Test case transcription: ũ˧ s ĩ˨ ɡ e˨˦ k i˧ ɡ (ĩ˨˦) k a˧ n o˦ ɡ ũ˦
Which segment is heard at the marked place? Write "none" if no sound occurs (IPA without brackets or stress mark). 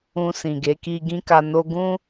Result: ĩ˦